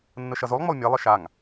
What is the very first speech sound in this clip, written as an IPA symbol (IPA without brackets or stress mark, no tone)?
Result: nː